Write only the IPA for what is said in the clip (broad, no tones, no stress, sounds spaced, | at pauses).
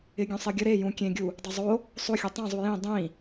ɪ ɡʲ õ sˤ e ɡʲ ə ɾ e j ũ kʲ ẽ ɡʲ u | dˤ o zˤ o | sˤ o xʲ o tˤ ẽ zˤ u j ĩ dˤ ĩ